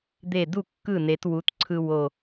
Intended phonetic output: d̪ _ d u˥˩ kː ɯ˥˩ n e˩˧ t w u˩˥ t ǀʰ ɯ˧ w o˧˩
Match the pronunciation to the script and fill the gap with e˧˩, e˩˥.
e˧˩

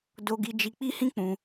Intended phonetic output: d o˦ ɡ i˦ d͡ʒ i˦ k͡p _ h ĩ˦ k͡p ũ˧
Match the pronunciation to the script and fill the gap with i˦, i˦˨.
i˦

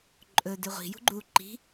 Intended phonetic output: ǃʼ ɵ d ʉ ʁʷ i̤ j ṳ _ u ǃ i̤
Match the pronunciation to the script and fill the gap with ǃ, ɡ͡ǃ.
ɡ͡ǃ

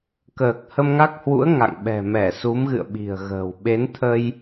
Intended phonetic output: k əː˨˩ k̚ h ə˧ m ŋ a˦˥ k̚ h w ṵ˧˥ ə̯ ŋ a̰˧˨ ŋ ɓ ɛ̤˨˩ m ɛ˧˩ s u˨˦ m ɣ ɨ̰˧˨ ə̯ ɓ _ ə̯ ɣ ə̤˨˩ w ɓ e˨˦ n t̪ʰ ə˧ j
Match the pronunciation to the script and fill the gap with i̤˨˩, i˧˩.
i̤˨˩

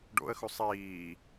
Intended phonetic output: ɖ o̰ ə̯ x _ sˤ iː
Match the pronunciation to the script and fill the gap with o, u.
u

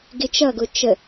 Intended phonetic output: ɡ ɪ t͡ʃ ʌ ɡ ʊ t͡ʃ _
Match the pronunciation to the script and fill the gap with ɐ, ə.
ə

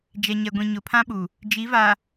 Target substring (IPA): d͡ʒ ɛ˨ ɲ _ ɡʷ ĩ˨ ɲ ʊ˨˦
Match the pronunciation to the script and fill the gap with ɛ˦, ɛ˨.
ɛ˨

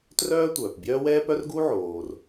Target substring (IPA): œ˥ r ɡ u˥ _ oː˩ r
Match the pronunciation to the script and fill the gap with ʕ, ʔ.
ʕ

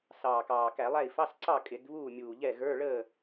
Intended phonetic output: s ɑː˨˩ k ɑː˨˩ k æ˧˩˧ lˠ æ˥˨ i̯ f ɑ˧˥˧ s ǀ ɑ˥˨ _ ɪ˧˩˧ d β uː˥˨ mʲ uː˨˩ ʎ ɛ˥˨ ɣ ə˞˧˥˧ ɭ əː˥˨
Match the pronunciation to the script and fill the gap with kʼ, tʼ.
kʼ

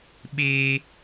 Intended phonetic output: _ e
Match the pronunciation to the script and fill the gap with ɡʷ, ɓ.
ɓ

